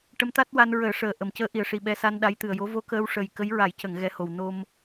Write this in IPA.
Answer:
ʈə˧˥mt̪a˦˥t̚wa˧n ɹəː˨˩˦ʂəː˨˩ ʔə˨˩˨mcəː˧˥ʔi˨˩ə̯ʂi˨˩ ɓɛ˧ sa˧nɗa˧˥j t̪ɨ˨˩ə̯jo˧˥ vo˧˥kəː˧w ʂə˨˩j kə˧˥jɹa˨˩˦jcə˨˩˨ŋ ɣɛ˧˥ho˨˩w no˧m

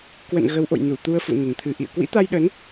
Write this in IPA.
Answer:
kwə̰˧˨n ɣə˨˦wʔo̰˧˨j nu˧˩t̪u˧ə̯fṵ˧˨nə˨˩n t̪ʰɨ˨˩ʔḭ˧˨ə̯ kwḭ˧˥t̪a˧jɗə˨˦n

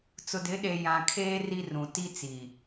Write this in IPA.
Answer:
t͡sʊ˨dɪ˨˦ ɗe˨ jã˨kʰeː˦ ri˦rũ˨ ti˦t͡si˨

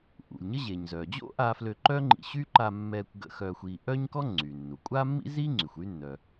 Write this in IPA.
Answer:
ʔṵ˩lʲɲə˥ ʑe˩ɲzœː˩d͡ʑo̰˥ʔaː˧f lø˧ǃœː˥ŋ͡ǃḭ˧ ɕy˥ ǃa˧mːɛː˧kʷ ɡə̰˧ xœː˧xʷiː˧ ʔœː˥ɲkɔ˥ŋ͡ǀy˩nːu˩ kʷʼaː˥mːḭ˥ziː˥ŋ͡ǀy˩xʷ y˥nːœ˩

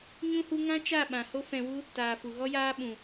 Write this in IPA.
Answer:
ɲũ˦hu˦ ŋã˦t͡ʃa˦˨ɓã˨ ho˦fɛ̃˧wu˦ | taː˨fu˨ɣɔ˦jaː˦ ɓũ˨

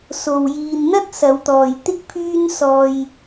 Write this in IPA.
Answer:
so˨w jiː˨nn̪ɐ˥t̚ sɐ˨˧wt̪ɔː˨jt̪ɪ˥k̚ pʰyː˥nsɔː˧j

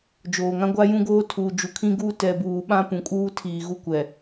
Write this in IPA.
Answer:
d͡ʒoː˨ŋã˦ɡʷa˦jũ˦ ɡoː˦ tʰu˨d͡ʒu˨kʰĩ˦ɡuː˦ tɛ˨buː˨ ɓã˦pũ˨kʼuː˦tʰiː˨ ɣu˦kʷɛ˨

